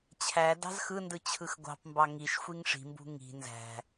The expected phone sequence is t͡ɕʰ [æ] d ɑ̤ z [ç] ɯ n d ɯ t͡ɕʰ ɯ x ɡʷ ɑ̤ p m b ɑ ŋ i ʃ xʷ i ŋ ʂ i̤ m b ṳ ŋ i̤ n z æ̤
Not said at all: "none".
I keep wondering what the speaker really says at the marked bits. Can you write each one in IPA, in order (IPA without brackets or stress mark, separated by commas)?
æ, x